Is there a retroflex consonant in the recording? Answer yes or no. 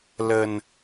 no